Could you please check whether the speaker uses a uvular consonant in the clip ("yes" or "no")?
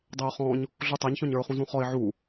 yes